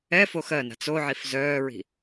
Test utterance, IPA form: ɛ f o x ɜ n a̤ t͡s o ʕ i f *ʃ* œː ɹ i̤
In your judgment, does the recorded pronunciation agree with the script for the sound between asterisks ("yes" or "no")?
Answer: no